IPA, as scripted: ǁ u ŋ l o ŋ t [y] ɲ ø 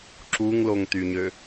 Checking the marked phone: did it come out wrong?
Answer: no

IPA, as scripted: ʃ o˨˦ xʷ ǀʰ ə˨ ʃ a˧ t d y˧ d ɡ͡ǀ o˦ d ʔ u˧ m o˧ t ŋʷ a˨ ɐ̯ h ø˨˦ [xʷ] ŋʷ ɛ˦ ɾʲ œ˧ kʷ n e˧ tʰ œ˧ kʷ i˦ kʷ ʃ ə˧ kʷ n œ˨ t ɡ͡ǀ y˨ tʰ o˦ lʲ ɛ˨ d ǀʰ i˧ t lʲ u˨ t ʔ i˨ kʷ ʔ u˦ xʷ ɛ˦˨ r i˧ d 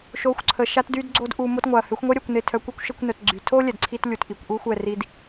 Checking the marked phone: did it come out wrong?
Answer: no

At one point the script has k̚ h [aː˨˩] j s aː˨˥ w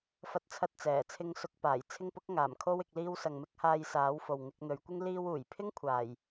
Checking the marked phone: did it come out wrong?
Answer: yes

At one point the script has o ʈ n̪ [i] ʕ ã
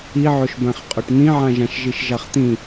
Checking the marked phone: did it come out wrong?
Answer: yes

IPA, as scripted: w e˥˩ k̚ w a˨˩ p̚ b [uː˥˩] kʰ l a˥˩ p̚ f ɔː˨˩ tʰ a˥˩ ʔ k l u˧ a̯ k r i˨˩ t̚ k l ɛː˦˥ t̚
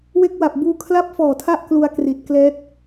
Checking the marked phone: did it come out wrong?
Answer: yes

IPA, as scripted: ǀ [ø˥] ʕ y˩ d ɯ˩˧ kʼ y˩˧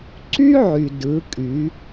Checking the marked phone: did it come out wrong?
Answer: yes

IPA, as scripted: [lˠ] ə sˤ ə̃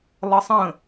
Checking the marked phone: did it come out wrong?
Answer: no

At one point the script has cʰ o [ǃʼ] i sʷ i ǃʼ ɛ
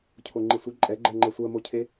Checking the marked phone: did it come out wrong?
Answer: yes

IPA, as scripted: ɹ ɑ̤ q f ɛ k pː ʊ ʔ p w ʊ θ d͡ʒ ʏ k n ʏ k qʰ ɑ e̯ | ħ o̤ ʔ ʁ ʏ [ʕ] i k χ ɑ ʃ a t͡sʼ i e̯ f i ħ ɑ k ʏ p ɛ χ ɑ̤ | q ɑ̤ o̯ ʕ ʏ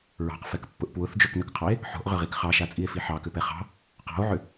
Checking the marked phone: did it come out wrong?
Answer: yes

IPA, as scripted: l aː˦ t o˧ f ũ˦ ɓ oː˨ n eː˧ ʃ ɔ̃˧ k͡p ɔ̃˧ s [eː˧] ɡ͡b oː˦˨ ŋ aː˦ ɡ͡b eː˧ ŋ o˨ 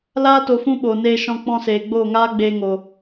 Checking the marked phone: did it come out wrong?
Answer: yes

